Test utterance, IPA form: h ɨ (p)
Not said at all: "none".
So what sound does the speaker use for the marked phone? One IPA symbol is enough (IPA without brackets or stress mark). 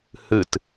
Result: t